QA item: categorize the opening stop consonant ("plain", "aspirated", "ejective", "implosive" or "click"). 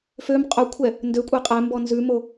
ejective